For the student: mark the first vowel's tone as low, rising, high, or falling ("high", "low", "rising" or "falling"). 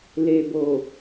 low